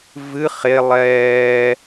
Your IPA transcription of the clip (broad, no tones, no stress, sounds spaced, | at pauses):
v ɨ χ e lˠ ɛː